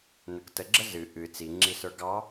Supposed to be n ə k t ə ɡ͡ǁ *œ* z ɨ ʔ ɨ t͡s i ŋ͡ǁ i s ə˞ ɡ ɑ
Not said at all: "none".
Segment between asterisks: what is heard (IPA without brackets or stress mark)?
ə